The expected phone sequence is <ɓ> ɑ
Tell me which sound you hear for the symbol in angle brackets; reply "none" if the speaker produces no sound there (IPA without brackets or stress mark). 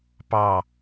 p